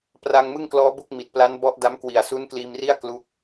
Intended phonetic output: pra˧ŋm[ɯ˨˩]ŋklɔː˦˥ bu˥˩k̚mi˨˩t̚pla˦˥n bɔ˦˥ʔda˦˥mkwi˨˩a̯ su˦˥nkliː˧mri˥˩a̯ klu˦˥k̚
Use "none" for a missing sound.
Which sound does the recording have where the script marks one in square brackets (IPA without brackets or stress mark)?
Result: ɯ˥˩